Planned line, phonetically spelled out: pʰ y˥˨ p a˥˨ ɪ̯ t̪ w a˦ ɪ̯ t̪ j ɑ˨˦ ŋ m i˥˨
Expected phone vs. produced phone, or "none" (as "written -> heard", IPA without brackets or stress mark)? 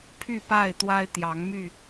i˥˨ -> y˥˨